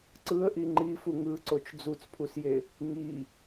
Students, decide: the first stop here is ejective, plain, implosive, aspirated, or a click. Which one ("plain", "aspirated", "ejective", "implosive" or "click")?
click